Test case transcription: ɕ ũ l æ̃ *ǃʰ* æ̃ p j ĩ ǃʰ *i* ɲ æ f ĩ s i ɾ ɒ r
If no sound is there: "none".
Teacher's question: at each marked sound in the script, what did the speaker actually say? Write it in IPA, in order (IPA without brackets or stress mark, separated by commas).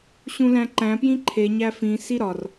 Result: ǃ, e